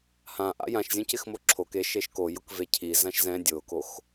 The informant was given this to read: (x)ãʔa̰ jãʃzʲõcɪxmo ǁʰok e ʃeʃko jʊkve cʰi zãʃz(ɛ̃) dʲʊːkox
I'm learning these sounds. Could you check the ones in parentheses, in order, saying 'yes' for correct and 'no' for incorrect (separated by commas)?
no, yes